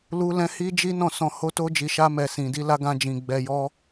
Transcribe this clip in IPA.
l u˦ l ɛ̃˦ h i˦ d͡ʒ i˦ n ɔ̃˦˨ s ɔ̃˧ h o˦ t o˦ d͡ʒ i˧ ʃ a˦ m ɛ˧ s ĩ˧ d i˦ l a˦ ɡ ã˦ d͡ʒ ĩ˧ ɡ͡b ɛ˧ j ɔ˦

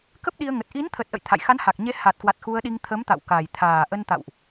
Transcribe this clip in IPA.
k ə˦˥ p̚ ɗ i˧ ə̯ ŋ ə˨˩ t̚ ʔ i˨˦ n t̪ʰ ə˨˩ t̚ ʔ ə̰˧˨ j t̪ʰ a̰˧˨ j x a˨˦ n h a˨˩ k̚ ɲ e˨˦ h a˨˩ t̚ k w a˨˩ t̚ x u˧ ə̯ ɗ i˧ ŋ t̪ʰ ə˨˦ m t̪ a̰˧˨ w k a˨˩ j t̪ʰ aː˨˩ ʔ ə˧ n t̪ a̰˧˨ w ʔ

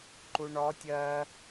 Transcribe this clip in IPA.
ǃ u ɳ ɔ tʲ ɜ

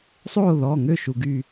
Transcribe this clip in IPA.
sˤ oː˥˧ ð ɔː˩˧˩ ŋ ø˥˧ ʃ u˧ ɡ yː˥˧

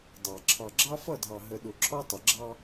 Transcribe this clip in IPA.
dˤ ɑ˨ ǁʰ ɑ˨ ɡ͡ǁ ɑ˦ f ʌ˦˨ dʱ ɑ˨ ɦ ə˨ ɗ ʊ˨ ǁʰ ɔ˦ tˤ ə˨ ɡ͡ǁ ɑ˦

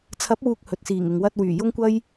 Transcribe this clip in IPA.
t͡sʰ ɐ˨˥ p̚ w uː˨ k̚ h ɵ˨ t̚ s iː˨˩ ŋ ɪ˨ ŋ w ɐ˧ t̚ w yː˨˩ j ʊ˥ ŋ kʷ ɐ˥ j

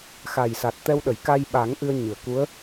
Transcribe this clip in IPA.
x a˨˩ j s a˨˩ t̚ t̪ ɛ˧ w ɗ ə˨˩˨ j k a˧ j ɓ a˨˩˦ ŋ ʔ ɨ˧ ə̯ ɲ ɨ˨˩˨ ə̯ k u˧˥ ə̯

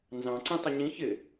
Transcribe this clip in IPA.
n z ɑ̃ ǀ ĩ tˤ ɪ ɲ ĩ ç ɪ

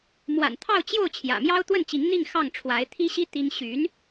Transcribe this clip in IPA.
m w a̰˨˩ n t̪ʰ ɑ˥˧ ʊ̯ t͡ɕ j o˥˩ ʊ̯ t͡ɕʰ j ä̰˨˩ m j ɑ˥ ʊ̯ t̪ w ə˥˩ n t͡ɕ i˧˥ ŋ n̪ i˥˧ ŋ x ɑ˥˩ ŋ ʈ͡ʂʰ w a˧˥ ɪ̯ t̪ʰ i˥ ɕ i˥ t̪ i˥ ŋ ɕ y˧˥ n

